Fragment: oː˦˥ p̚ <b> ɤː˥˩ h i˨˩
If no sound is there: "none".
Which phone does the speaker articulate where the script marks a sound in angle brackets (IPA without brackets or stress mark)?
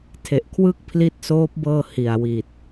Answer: b